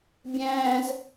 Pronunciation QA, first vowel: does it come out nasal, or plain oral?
nasal